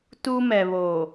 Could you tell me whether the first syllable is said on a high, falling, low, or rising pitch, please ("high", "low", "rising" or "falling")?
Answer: high